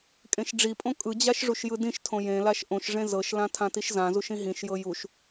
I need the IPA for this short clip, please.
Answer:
kʼ ẽ ʃ ɖ͡ʐ i pʼ õ kʼ ɯ d͡ʑ a ʃ ʐ u ʃ j ɯ d ĩ ʃ tʰ õ j ẽ l a ʃ ʔ õ ʃ ʐ ẽ z ɤ ʃ l ã tʰ ã t i ʃ z ã z u ʃ ĩ ɦ ĩ ʃ j ɤ j u ʃ

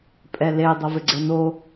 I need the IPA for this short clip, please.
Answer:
pʼ ɛ l e dˤ o v ɪ ɡ͡ǀ ɛ n o

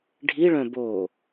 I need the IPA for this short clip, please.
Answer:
ɖʱ i ɭ œ̃ b o

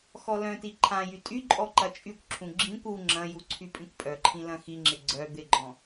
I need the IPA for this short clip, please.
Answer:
x ɔ l œ̃ t i ǃʰ ã j y tʼ y ǃʼ ɔ ǃ ɐ t͡ʃʼ y kʷ ǁʰ ũ ɡ͡ǁ ĩ kʷ u ŋ͡ǁ ɐ̃ j u ǀʰ y pʼ ĩ kʷ pʼ œ ǃʰ ĩ l ɐ̃ x i ŋ͡ǁ ɪ ɡ͡ǀ œ d̪ ɪ ɡ͡ǃ ɔ̃

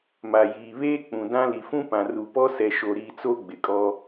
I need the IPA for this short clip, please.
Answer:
m a˨ j iː˨ β eː˦ k͡p ũ˨ d ã˦ l i˨ f ũ˦ p ã˨ r u˨ p ɔ˦ s ɛ˨ ʃ o˨ ɾ iː˨ t͡s o˦ ɡ͡b ɪ˨ kʼ ɔ˦

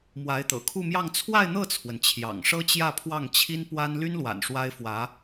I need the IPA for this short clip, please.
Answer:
m w a˧˥ ɪ̯ t̪ ɤ̰˨˩ kʰ u˥˧ m j ɑ˥˧ ŋ t͡sʰ w a˥˧ ɪ̯ n̪ ɤ˥˩ t͡sʰ w ə˩ n t͡ɕʰ j ɑ̰˨˩ ŋ ʂ ɤ˥ t͡ɕ j ä˥˧ pʰ w ɑ˥˩ ŋ t͡ɕʰ i˥ n p w a˥ n l y˥ n l w a̰˨˩ n ʂ w a˥ ɪ̯ f w ä˧˥

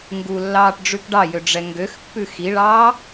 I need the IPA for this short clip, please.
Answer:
ŋ ɡ u lː ɑː ʈ ɖ͡ʐ ʉ k ɖ ɑ j ø ɖ͡ʐ ɛ ŋ ɡ ø x pː ʉ x i ɭ ɑː

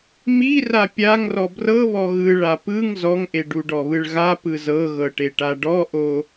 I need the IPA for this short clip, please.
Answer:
m i r a pʲ a ŋ r ɔ b r ɤ β ɔ ɣ ɯ ɭ a p ɯ ŋ z ɔ ŋ ʔ e ɖ u ɖ ɔ β ɯ ɭ ɣ a p ɯ z ɤ ɣ ɤ ʈ e ʈ a ɖ ɔ ʔ o

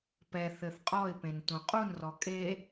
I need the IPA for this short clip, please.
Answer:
p ɛ θ ɘ θ qʼ ɔ ɪ̯ p ẽ n t ũ qʼ u n r ɔ kʼ e

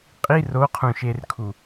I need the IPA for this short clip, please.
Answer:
qʼ i r o qʰ ũ ʃ e r kʰ u

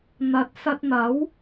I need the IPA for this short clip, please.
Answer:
n̪ ɐ˨˥ t̚ s ɐ˧ t̚ n̪ ɐ˨˥ w

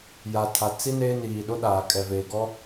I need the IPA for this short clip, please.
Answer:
j a˨ tʰ a˨ t͡s i˦ n e˦ n iː˨ ɗ ʊ˦ ɗ aː˨ kʼ ɛ˨ v eː˨ ɡ ɔ˦

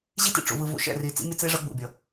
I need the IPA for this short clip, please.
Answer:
ʑ i˦ t ḭ˨ ʈ͡ʂ ṵ˨ v ɯ˨ v ṵ˨ ʃ ɛ̰˦˨ r i˨ t͡s ḭ˦ mʲ ʌ˦ t͡s e˦ ʐ ʌ˦ ɡ͡b ṵ˨ bʲ ʌ˨

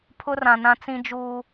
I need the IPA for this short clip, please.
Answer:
pʰ ʊ˦ r ã˨ n ã˦ t͡s ĩ˦ d͡ʒ uː˦

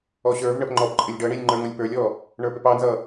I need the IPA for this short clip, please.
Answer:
ɔ ɕ ə˞ v ɳ ə p ŋ͡ǃ ɔ p ǃʼ ɪ lʲ ɖ ʌ ɳ i lʲ ŋ͡ǃ ə˞ ŋ ʌ lʲ p ə˞ lʲ ɔ | ɳ ə˞ p ɪ p ɑ n z ʌ

